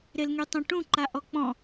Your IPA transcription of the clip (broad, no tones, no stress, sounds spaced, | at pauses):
ɾ e l ŋ y tˤ œ̃ ʈ ũ ǃ a ʔ ɔ k͡p ɔ̃